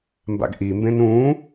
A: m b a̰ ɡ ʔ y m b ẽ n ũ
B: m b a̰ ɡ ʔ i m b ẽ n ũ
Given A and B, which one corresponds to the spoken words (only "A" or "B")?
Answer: B